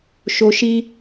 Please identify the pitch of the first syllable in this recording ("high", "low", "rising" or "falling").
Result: low